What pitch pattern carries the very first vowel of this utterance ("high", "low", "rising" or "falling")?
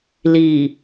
low